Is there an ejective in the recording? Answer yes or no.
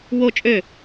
yes